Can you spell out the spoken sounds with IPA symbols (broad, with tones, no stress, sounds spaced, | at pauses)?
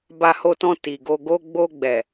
b a˧ h o˧ t ɔ̃˧ t i˨ ɡ o˧ ɡ o˧ ɡ͡b o˧ ɡ͡b ɛ˨